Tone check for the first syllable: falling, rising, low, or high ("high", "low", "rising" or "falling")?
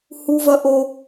high